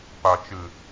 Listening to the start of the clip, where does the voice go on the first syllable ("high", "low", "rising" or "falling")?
low